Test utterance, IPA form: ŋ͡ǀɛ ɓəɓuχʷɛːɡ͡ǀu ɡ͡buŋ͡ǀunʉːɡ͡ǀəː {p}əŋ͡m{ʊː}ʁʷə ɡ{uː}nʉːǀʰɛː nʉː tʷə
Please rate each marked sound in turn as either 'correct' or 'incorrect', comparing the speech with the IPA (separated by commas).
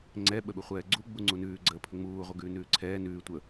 incorrect, incorrect, incorrect